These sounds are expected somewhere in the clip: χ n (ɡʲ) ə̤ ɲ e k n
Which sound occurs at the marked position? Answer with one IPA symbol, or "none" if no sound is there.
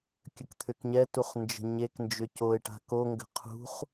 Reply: d͡ʒ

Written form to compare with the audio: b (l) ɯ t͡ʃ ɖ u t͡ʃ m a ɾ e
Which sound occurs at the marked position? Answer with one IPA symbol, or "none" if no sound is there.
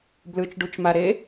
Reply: l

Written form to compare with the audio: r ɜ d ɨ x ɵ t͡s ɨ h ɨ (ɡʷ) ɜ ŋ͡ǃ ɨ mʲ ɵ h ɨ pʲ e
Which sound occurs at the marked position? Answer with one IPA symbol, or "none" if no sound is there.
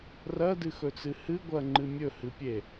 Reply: ɡʷ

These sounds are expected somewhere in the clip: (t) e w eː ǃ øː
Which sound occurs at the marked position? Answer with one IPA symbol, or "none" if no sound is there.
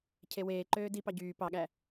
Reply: cʰ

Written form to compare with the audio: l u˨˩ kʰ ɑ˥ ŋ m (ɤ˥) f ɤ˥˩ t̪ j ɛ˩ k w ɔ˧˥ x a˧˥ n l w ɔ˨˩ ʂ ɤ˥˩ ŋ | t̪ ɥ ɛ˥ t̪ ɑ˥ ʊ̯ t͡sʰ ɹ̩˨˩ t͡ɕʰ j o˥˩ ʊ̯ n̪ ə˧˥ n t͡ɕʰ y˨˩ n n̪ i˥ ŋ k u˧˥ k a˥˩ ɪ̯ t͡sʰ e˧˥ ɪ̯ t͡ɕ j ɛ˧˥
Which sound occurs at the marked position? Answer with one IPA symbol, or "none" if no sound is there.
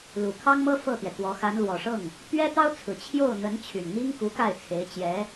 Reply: ɤ˥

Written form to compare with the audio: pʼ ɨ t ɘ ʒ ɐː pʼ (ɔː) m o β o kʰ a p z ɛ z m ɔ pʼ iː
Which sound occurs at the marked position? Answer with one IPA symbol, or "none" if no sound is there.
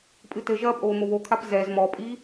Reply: oː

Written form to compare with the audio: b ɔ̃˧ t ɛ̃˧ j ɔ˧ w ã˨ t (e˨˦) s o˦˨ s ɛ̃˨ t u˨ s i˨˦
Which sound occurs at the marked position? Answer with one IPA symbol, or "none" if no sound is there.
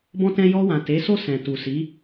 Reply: e˨˦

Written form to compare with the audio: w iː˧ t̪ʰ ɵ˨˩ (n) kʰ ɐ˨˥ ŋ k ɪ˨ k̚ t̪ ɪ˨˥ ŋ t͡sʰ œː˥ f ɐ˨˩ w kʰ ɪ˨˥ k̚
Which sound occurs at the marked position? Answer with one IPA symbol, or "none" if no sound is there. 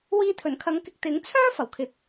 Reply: n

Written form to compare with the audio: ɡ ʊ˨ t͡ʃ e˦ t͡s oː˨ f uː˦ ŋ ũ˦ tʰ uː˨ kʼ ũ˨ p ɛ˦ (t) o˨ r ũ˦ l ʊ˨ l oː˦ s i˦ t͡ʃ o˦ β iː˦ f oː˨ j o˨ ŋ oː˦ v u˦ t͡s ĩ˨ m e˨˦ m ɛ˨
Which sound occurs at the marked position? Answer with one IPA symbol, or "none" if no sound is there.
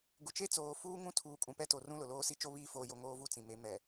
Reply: t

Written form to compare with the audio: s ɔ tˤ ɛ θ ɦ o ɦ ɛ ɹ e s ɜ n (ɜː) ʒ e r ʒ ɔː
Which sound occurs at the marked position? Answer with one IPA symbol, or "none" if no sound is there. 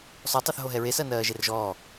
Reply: ɜː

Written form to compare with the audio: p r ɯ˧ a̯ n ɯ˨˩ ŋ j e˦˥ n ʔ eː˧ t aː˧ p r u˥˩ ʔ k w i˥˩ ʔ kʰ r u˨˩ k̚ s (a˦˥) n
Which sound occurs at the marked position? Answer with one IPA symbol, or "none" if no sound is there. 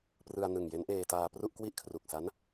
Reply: a˦˥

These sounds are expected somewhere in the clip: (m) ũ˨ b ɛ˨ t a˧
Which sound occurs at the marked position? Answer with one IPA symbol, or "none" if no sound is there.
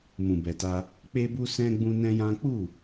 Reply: m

